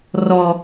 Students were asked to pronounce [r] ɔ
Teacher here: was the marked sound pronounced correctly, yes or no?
yes